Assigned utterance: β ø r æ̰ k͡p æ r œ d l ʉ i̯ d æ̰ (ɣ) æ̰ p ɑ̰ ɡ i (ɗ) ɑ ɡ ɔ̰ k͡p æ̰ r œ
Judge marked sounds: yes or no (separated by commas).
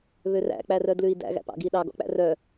yes, yes